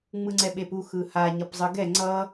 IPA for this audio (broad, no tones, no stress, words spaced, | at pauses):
ŋ͡mɯŋ͡ǀɛɓepu xɯha ɲʌpzˤɯɡɛ ŋ͡ǀʌ